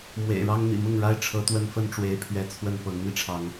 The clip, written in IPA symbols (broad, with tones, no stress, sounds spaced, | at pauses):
m w ḛ˨˩ ɪ̯ ɻ ɑ˦ ŋ n̪ ḭ˨˩ m ʊ˥˨ ŋ ɻ a˦ ɪ̯ ʈ͡ʂʰ ɤ˨˦ t̪ w ə˦ n f ə˦ n ʈ͡ʂ w e˦ ɪ̯ pʰ ɥ ɛ˥˨ t͡sʰ w ə˥˨ n p ɤ˨˦ ŋ n̪ i˧ ʈ͡ʂʰ ɑ˨˦ ŋ